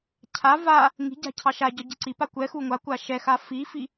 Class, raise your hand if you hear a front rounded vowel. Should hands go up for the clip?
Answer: no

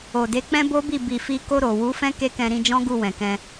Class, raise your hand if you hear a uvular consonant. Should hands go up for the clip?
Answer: no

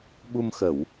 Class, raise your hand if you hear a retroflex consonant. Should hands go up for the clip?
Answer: no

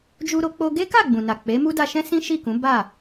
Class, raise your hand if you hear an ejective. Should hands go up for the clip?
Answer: no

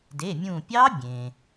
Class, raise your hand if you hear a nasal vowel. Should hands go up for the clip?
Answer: yes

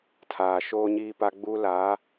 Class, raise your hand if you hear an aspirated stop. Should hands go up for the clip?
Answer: yes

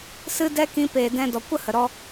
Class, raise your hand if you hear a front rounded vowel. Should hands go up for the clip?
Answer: no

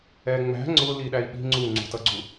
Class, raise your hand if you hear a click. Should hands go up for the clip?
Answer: yes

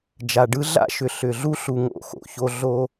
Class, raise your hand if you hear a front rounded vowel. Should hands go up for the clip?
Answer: yes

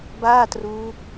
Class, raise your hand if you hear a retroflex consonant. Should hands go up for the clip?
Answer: no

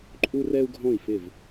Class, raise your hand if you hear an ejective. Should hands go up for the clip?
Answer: yes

